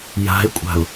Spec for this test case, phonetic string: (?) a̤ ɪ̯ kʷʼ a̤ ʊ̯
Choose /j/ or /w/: j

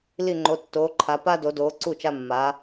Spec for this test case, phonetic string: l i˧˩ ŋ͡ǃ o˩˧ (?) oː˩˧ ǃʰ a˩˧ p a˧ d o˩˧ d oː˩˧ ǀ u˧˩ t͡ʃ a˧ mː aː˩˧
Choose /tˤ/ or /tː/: tː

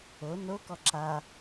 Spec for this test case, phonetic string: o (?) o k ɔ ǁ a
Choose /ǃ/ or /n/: n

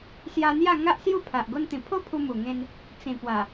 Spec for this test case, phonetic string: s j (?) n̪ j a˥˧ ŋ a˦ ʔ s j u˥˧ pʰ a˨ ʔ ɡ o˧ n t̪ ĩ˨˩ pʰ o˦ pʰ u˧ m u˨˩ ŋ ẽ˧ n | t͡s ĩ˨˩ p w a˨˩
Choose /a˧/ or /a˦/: a˧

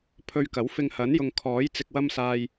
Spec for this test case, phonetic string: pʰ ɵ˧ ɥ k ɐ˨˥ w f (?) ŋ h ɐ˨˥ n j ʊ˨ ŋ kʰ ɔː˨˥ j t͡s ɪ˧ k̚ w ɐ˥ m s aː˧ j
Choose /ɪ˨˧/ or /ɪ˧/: ɪ˧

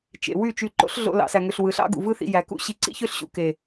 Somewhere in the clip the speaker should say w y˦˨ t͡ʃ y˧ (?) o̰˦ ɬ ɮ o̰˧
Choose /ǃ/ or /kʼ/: ǃ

